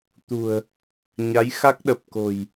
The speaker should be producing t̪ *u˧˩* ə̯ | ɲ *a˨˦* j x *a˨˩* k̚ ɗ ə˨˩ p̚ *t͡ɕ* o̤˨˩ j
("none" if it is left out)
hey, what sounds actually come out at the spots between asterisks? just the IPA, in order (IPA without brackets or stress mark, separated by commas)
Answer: ṳ˨˩, a˨˦, a˦˥, k